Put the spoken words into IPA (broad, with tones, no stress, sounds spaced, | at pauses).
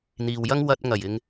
n̪ iː˨ w j ɐ˥ ŋ w ɐ˧ t̚ ŋ ɐ˨˩ j ɪ˨ ŋ